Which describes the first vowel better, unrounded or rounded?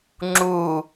rounded